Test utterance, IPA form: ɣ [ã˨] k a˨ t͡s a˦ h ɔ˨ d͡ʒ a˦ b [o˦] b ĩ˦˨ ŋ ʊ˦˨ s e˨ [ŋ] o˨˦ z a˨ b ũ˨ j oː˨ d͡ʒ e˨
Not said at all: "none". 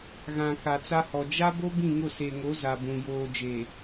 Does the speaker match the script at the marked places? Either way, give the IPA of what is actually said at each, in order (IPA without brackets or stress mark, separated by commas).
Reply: ã˨, o˦, ŋ